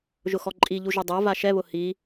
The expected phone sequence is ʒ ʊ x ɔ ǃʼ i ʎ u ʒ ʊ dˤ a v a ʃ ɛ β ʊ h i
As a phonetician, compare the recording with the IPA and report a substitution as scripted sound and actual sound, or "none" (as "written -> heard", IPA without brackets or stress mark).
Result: none